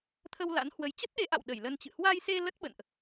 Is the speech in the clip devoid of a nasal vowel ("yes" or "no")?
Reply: yes